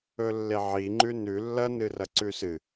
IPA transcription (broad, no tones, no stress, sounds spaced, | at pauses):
ɵ lː e ʕ i ŋ͡ǃ ʉ n ʉ lː ɐ n ɨ r ɐ ǀ ʉ s ɨ